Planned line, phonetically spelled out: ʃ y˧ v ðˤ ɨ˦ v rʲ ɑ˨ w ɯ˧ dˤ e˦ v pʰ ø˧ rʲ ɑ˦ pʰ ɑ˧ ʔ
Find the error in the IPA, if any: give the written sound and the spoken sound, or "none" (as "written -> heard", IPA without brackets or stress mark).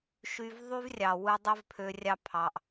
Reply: ɨ˦ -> y˦